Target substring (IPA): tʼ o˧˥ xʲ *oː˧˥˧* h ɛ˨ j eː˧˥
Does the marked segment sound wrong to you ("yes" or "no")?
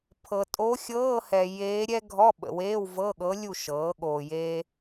yes